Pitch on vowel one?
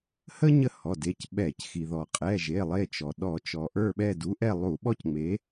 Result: high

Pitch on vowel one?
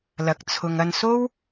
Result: rising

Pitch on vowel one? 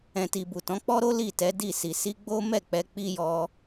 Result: low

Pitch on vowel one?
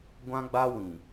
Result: high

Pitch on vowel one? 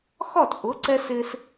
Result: falling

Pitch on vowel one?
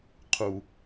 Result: low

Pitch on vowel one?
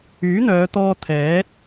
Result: rising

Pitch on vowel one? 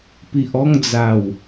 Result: low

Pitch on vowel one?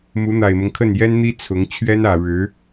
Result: rising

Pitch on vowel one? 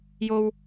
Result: low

